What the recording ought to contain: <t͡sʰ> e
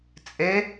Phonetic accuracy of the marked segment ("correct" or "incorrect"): incorrect